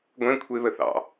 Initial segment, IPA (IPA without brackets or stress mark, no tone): ɡʷ